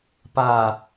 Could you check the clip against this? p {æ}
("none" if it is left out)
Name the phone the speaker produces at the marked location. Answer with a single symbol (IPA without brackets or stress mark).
a